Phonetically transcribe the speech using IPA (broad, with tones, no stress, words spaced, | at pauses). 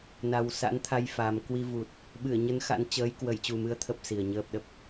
na˨˩wsa̰˧˥nt̪ʰa˧j fa˨˩m kwi˧vu˨˩t̚ | ɓɨ˧˩ə̯ɲə˨˦n xa̰˧˥nt͡ɕəː˨˦j kwə˧˩jt͡ɕu˨˩mɨ˨˦ə̯ t̪ʰə˦˥p̚si˨˩ə̯ɲəː˦˥p̚ɗə˨˩p̚